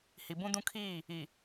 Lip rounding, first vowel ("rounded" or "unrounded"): unrounded